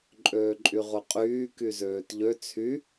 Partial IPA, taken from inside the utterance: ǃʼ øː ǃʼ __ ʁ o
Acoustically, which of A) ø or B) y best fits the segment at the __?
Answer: B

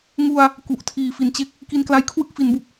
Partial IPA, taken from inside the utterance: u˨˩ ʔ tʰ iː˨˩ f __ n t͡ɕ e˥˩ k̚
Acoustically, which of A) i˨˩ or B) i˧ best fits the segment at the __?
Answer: A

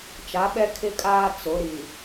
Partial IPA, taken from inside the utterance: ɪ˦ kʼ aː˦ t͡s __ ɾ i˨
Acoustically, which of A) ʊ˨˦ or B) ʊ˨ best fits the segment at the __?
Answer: A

